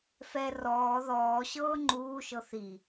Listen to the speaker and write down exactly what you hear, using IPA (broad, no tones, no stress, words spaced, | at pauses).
fɛ rɔː ðɔː ɕɤːŋ͡ǃuːʃɤ θi